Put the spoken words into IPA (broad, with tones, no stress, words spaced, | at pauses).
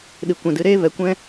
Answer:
ɗɨ˨kʷɛ̃˨dɨ˧ ɾeː˦ vɛ˨kʷɛ̃˦